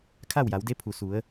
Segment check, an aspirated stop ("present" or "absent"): present